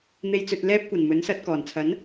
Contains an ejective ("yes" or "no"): no